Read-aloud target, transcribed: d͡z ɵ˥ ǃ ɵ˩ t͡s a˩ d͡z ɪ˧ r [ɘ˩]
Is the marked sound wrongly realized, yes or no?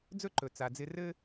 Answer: yes